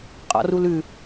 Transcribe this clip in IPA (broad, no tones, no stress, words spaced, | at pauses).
qʼɔ̰rulʉ